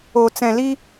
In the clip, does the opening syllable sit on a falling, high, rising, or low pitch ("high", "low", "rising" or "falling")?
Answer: low